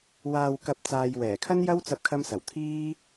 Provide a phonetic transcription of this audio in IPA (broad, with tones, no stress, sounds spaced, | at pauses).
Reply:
w aː˨ w k ɐ˨ p̚ t͡s aː˨ j w ɛː˨˩ kʰ ɐ˥ n j ɐ˥ w t͡s ɐ˧ p̚ kʰ ɐ˧ m s ɐ˨˩ w t̪ʰ iː˥